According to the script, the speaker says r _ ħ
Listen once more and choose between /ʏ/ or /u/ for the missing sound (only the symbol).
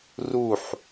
u